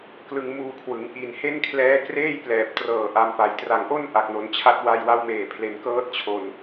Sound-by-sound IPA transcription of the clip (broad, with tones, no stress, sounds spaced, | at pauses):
k l ɯ˧ ŋ m uː˧ kʰ w ɯ˩˦ ŋ ʔ i˨˩ n h e˥˩ n kʰ l ɛː˦˥ k r eː˥˩ j p l ɛː˨˩ p̚ t r ɤː˨˩ ʔ a˧ m p a˨˩ j t r a˨˩ ŋ ʔ o˥˩ n ʔ a˨˩ k̚ n o˩˦ n t͡ɕʰ a˦˥ t̚ w a˧ j w a˦˥ w m eː˨˩ pʰ l e˩˦ n k ɤː˦˥ t̚ t͡ɕʰ o˨˩ n